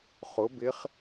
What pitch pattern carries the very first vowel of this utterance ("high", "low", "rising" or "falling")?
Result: rising